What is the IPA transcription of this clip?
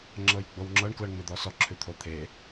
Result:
ŋ͡ǁɤjɡ͡bowŋ͡ǁɤɳ klɤɳŋ͡med̪ɔsɔ ǁʰʉt̪ʰot̪ʰe

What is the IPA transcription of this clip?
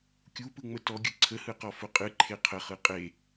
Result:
kʲupɯŋ͡mə tɔɡʲɯ ǀʰəhɯqɔfʊ qʼɨǃʰe qʰəχɯ qʼe

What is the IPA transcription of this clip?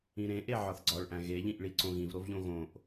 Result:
ĩɾẽʔe ʕɒθɡ͡ǀɒɭʔæ̃ ɣeʎĩʔɭi ǀõɣĩvɾovʎõ ɣõʔ

